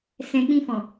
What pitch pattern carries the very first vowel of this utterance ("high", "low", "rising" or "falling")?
low